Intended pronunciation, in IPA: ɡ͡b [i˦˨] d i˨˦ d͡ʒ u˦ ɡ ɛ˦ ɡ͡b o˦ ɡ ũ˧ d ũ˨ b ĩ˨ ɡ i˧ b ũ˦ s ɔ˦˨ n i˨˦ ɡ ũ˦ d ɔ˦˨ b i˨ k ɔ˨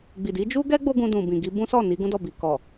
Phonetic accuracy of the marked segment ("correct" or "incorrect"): incorrect